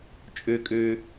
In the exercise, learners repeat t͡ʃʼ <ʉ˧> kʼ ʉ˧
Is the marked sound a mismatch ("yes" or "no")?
no